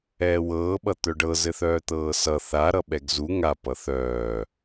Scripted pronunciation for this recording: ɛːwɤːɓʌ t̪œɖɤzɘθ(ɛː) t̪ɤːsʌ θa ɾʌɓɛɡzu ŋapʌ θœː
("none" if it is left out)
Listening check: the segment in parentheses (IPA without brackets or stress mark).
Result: œː